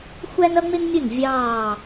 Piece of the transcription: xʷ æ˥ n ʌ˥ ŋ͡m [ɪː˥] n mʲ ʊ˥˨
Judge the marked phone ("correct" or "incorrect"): incorrect